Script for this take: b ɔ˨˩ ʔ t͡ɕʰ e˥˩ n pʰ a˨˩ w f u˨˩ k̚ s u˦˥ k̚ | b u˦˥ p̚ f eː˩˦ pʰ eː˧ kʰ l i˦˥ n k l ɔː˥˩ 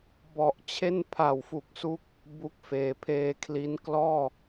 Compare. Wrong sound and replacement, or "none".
p̚ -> k̚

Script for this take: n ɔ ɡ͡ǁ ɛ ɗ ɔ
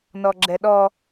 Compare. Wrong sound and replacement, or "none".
none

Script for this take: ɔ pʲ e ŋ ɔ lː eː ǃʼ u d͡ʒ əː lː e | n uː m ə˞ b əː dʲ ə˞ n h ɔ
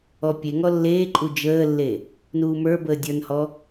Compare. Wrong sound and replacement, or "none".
none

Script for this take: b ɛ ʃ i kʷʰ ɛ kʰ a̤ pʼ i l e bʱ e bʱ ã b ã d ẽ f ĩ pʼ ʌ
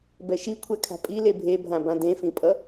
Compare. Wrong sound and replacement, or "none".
none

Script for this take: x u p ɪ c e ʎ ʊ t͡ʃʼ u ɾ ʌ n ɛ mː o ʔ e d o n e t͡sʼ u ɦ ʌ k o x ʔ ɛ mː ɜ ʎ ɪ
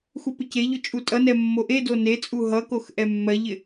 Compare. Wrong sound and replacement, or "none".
ɾ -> tʼ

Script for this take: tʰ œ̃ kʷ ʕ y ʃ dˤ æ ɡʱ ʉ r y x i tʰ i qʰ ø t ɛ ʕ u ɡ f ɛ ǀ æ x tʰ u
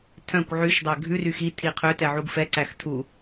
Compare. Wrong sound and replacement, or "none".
none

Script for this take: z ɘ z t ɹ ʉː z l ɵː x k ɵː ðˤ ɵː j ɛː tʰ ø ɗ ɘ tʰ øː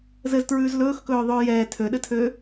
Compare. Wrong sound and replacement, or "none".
none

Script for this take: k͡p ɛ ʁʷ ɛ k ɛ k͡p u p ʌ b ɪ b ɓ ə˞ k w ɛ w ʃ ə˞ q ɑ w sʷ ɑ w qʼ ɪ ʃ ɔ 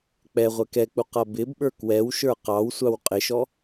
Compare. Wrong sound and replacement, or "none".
p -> q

